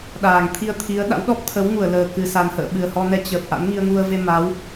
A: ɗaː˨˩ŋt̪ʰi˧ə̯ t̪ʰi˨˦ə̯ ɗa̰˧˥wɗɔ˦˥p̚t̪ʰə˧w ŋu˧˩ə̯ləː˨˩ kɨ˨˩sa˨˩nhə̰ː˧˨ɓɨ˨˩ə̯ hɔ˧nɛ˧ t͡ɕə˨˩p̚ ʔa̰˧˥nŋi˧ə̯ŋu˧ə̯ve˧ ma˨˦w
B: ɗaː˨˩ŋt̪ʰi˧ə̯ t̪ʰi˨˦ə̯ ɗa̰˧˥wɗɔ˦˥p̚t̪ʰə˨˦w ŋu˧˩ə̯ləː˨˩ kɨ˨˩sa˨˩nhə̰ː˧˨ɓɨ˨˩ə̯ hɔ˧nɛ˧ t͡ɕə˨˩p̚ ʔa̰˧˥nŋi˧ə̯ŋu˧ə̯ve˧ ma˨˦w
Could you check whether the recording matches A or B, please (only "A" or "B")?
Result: B